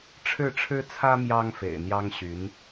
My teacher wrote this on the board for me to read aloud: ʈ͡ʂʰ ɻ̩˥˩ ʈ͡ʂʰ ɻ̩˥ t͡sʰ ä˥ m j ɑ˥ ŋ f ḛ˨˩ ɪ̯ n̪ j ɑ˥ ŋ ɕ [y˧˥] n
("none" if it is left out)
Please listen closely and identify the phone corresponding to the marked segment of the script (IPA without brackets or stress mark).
y˧˥